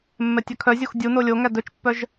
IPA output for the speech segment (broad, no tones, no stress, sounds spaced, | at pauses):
mː ɛ tʲ œ kʰ œ zʲ o x dʲ u n o lʲ o ŋ æ d ɵ t͡ʃ pː œ ʒ